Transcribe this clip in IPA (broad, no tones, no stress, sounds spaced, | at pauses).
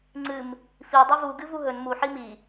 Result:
ŋ͡ǀ ɨ m | f i dˤ i v u ɡ ɨ v u ɦ ɵ n m u ħ i m i